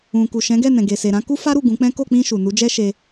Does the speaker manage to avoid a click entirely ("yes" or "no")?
yes